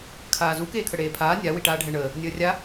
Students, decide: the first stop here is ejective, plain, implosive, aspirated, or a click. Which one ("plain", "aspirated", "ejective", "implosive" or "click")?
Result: aspirated